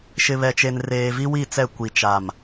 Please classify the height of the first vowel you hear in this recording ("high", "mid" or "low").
high